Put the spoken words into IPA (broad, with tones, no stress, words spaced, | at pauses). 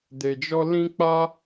de˧d͡ʒɔ˦ lĩ˦k͡pa˦